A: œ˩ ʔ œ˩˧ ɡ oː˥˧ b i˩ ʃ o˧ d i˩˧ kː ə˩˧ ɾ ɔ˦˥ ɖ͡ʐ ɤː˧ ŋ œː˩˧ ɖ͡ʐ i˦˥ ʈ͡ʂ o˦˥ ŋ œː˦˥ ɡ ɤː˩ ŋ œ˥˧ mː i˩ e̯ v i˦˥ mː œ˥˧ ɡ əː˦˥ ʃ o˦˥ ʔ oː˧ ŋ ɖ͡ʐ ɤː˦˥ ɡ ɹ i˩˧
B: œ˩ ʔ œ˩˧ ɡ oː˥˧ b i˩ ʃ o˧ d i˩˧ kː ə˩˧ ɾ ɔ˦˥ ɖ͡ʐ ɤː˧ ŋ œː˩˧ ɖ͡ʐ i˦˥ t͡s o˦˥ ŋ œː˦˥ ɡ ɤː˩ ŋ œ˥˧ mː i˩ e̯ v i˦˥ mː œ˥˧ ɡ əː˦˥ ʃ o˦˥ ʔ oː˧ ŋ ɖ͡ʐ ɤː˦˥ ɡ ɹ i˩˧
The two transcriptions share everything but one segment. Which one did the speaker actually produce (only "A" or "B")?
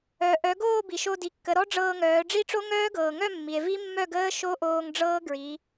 A